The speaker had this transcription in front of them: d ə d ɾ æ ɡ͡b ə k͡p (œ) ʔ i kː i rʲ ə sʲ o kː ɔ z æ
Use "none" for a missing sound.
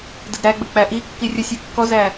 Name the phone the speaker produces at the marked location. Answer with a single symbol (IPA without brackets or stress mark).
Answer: æ